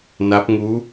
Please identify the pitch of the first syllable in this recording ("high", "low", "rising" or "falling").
rising